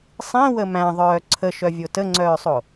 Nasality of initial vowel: nasal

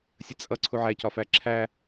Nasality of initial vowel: oral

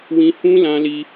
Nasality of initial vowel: nasal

